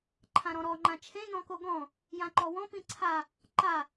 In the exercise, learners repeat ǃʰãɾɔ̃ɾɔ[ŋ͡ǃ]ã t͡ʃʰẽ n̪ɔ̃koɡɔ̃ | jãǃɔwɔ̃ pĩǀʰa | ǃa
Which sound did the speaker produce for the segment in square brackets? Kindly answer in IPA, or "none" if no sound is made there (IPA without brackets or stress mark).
ŋ͡ǃ